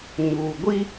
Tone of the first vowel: low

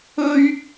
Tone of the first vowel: high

